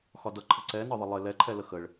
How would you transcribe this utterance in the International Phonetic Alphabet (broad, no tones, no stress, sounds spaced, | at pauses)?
x ɒ d ʌ ǃʰ ə ǀ ɛ n ɒ ðˤ ə lˠ ɪ l ɛ ǃʰ ɛ l ə x ə ɭ